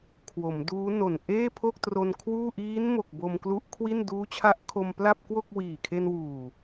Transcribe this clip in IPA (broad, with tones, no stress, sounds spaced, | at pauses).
kʰ w o˩˦ m d uː˦˥ n o˨˩ n ʔ eː˥˩ pʰ o˥˩ k̚ t r o˧ n kʰ w uː˥˩ ʔ iː˦˥ n m o˨˩ k̚ b o˧ m k l u˦˥ ʔ kʰ w i˥˩ n d uː˦˥ t͡ɕʰ a˦˥ ʔ kʰ o˧ m p l a˥˩ p̚ k w o˥˩ k̚ w iː˨˩ kʰ e˧ n w uː˨˩